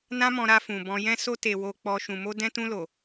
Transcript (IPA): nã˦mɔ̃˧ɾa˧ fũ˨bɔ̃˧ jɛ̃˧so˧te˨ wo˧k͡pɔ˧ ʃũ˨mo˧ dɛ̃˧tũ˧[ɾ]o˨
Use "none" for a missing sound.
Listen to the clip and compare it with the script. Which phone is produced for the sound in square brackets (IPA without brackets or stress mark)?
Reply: l